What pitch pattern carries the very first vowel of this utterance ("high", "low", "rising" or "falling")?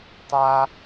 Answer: high